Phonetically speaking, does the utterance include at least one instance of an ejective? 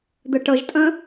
yes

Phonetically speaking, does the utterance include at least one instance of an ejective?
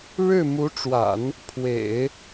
no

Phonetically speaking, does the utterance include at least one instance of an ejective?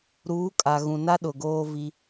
yes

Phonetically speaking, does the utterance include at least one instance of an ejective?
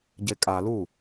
yes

